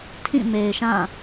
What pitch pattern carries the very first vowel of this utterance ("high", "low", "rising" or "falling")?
falling